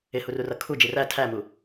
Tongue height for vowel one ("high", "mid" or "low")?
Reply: high